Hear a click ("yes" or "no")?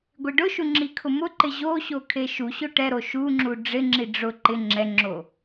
yes